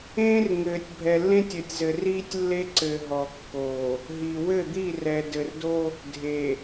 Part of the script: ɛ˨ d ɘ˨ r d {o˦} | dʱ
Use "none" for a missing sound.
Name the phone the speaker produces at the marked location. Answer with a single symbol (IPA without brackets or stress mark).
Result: o˦